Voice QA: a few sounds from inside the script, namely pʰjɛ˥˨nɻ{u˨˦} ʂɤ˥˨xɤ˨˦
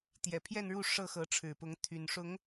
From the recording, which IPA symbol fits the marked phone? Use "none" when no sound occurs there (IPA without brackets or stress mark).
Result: u˥˨